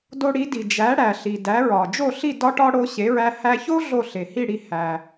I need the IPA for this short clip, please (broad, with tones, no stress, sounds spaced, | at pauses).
d o˧ ɽ i˩˥ d i˩ d͡ʒ æ˩˥ ɽ æ˩ ɬ i˩ d æ˩˥ ɹ ɒ˩ d͡ʒ o˥˩ ɬ i˥˩ d ɒ˥ ʈ ɒ˥ ɽ o˧ ɕ e˩˥ ɹ æ˧ h æ˧ ç o˥ ɮ o˥˩ ɬ e˩ h i˥˩ ɽ i˩˥ h æ˩